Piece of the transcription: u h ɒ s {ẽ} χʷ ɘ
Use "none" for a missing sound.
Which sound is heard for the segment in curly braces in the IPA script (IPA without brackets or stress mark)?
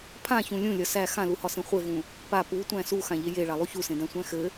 ẽ